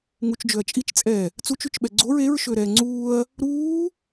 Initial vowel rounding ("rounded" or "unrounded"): rounded